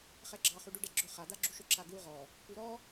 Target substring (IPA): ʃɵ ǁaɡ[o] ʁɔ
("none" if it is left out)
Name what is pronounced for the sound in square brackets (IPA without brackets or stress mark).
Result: u